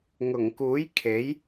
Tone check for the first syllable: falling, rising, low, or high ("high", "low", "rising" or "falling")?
low